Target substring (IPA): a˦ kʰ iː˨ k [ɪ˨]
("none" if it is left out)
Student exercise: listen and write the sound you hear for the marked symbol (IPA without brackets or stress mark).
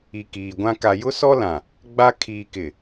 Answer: ɪ˨